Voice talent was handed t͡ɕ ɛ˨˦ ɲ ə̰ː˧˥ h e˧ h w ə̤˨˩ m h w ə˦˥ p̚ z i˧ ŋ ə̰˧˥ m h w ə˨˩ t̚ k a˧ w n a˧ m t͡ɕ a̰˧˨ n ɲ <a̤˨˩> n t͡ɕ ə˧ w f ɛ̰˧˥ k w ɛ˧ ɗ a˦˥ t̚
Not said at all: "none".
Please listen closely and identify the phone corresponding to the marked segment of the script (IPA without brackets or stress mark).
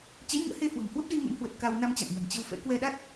a̤˨˩